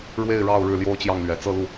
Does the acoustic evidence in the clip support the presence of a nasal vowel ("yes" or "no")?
no